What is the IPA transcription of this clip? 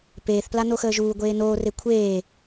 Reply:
p eː θ p l a n o x əː ʒ uː ɡʷ eː n oː r e kʷʰ eː

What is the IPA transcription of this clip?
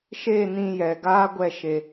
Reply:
ʃ e˦˨ n ĩ˧ j ɛ˨ ɡ aː˦ ɡʷ ɛ˦˨ ʃ e˧

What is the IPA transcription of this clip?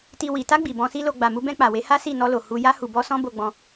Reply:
t i˨ w i˨ t a˧ ɡ͡b i˨ b ɔ̃˧ s i˦ l o˧ ɡ͡b a˨ m u˧ b ɛ̃˧ k͡p a˨ w e˨˦ h a˦ s i˦˨ n ɔ˧ l o˨ h u˧ j a˧ h u˨ b ɔ˧ s ɔ̃˦ b o˧ ɡ͡b ɔ̃˧

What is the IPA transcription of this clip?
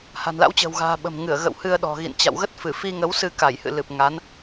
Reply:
h a̤˨˩ n l a̰˧˥ w t͡ɕ ə̤ː˨˩ w ɣ a̤ː˨˩ ɓ ə̤˨˩ m ŋ ɨ˧˩ ə̯ ɣ ə̰˧˨ w h ɨ˧ ə̯ ɗ ɔ̤˨˩ ɣ ḭ˧˨ n t͡ɕ a̰˧˨ w ɣ ə˦˥ t̚ f ɨ˧˩ f i˧ ŋ ə˨˦ w s ɨ˧ k a˧˩ j h ɨ̰˧˨ l ɨ˨˩ p̚ ŋ a˨˦ n

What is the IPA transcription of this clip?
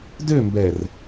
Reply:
d ø m b ɛ r

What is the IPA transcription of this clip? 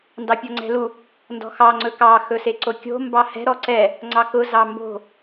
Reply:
n d ɑ pʲ ɔ ŋ͡ǀ ɛ̤ l u | n d ɔ̤ x ɑ ŋ͡ǀ ɵ k ɑ x ɵ s e ǀ o kʲ o̤ m b ɑ h ɛ̤ ɾ ɔ ǀ ɛ | ŋ͡ǀ ɑ k ʊ z ɑ m b o̤

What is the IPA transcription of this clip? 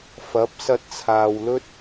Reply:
f ɐ˨˥ p̚ s ɐ˧ t̚ t͡sʰ aː˨ w l ɵ˥ t̚

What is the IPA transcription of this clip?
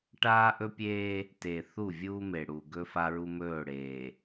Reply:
ʈ aː˦ ʔ ɵ˦ pʲ eː˦ | t e˨ θ u˦˨ vʲ uː˦ m e˨ ɽ u˨ ɡ ɵ˦ f a˦ ɹ u˦ m ɵː˦˨ ɽ eː˨

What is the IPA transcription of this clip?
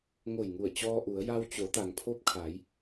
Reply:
ŋ o˧˩ j ŋ u˧˩ ə̯ t͡ɕ ɔː˧ ʔ u˩˧ ə̯ j a˧ w t͡ɕ o˩˧ t̪ a˩ ŋ pʰ o˧ p̚ kʰ aː˩˧ j

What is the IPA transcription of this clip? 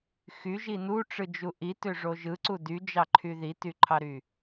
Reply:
x y ʒ i n u ʈ͡ʂ ɯ d͡ʒ u ʔ i t ø ʐ o ʒ ɯ ǀ u d y d͡ʒ ɑ ǃʰ y ð i t y ǃʰ ɑ ɾ y

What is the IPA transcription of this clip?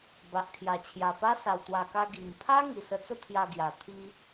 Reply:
b a˨ ʔ kʰ j a˨˩ t͡ɕʰ j a˨˩ p a˦ s a˨˩ w t̪ w a˨˩ k a˧ ɡ i˨˩ m pʰ a˦ ŋ i˨˩ s ə˧ t͡s ə˥˧ t̪ʰ j a˧ ɡ j a˨˩ t̪ʰ i˦

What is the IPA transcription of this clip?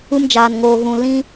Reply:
u˧ m d͡ʒ aː˨ n ŋ oː˨ ɣ ũ˨ l ĩ˦

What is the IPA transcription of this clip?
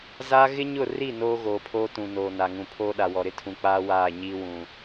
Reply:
z aː˦ ɣ ɪ˦ ɲ ʊ˦˨ r i˦˨ n oː˦ ɣ oː˨ pʰ oː˦ t ũ˨ n oː˨ n a˨ ŋ ũ˨ pʰ oː˦ ɗ a˨ w ɔ˨ ɾ ɪ˦ tʰ ũ˨ k͡p aː˦ w aː˦˨ ɲ iː˦ w ũ˨

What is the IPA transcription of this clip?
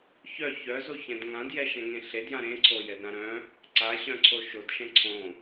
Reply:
ç œ ç œ z o ç ɛ̃ d ŋ ã d j ɛ ʃ ɛ̃ ŋ ẽ ɬ e d j ã ɾ ẽ ǀʰ o j ɛ d ɾ ã ɾ œ̃ | ǀ a ɕ œ̃ ǀʰ o ʃ o d ʃ ɛ̃ ǀʰ õ

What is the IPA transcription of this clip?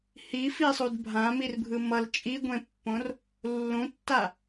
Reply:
h i f i sˤ u d bʱ ã m i r bʱ ɯ m ʌ l t͡ʃʼ i ɡʷ ẽ pː õ r | lː ũ tː a

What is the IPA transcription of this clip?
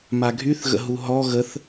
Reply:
m a ɡʱ y θ ɣ ə̰ ɦ u ɦ ɔ ɣ ə θ

